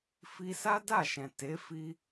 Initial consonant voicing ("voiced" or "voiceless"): voiceless